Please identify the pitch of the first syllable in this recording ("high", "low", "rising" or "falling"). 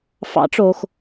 rising